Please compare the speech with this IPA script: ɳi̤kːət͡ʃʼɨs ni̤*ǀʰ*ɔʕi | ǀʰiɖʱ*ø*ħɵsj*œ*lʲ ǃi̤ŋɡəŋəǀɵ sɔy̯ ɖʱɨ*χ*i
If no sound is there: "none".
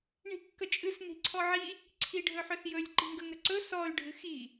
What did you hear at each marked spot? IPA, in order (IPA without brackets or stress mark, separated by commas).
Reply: ǀʰ, ɵ, ɵ, x